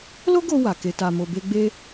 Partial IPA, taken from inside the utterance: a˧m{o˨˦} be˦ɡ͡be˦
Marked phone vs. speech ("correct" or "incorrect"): incorrect